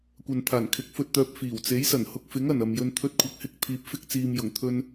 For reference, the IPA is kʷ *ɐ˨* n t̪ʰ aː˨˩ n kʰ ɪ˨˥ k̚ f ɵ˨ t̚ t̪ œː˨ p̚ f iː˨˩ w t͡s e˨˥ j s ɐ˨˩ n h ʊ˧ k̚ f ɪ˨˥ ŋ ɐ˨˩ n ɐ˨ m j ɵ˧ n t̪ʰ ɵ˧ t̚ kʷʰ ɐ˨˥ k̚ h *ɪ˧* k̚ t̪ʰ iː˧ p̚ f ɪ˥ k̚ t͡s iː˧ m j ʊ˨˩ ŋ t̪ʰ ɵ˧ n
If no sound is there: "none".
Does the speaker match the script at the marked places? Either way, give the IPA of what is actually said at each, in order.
ɐ˨, ɪ˧

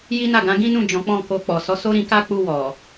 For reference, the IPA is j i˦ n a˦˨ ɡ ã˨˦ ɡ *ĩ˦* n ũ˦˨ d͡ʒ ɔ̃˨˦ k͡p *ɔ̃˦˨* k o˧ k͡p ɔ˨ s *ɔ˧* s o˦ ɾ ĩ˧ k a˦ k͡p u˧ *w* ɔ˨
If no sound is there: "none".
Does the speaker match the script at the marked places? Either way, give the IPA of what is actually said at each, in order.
ĩ˦, ɔ̃˦˨, ɔ˨˦, w

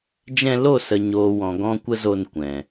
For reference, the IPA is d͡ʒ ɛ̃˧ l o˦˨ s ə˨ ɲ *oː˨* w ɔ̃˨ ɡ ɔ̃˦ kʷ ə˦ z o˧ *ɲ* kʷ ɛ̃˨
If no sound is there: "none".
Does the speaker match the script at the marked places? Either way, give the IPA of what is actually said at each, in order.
oː˨, n

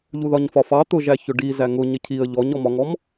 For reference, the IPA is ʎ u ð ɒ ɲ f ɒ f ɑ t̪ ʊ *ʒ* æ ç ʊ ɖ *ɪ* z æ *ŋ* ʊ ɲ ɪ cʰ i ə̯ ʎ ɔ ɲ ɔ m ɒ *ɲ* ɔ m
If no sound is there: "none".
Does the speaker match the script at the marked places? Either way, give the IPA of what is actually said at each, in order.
ʒ, i, ŋ, ŋ

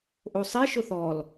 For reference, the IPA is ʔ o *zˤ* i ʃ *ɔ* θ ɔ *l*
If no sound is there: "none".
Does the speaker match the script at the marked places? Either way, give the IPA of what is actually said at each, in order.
sˤ, ʊ, l

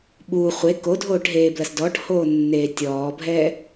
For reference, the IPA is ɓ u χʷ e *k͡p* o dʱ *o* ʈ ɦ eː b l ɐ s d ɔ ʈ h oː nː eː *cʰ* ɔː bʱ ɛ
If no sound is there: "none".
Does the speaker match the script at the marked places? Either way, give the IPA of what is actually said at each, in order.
k, oː, tʲ

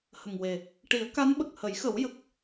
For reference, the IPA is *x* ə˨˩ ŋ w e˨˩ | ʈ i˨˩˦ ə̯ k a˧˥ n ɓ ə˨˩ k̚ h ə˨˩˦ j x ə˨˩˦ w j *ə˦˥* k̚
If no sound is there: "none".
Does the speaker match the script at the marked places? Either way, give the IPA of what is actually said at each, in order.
h, ə˨˩

